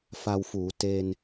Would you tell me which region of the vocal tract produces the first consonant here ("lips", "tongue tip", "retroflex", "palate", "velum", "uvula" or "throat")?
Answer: lips